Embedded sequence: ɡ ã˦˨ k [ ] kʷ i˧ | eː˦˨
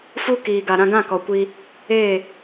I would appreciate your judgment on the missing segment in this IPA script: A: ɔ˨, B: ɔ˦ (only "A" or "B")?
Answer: A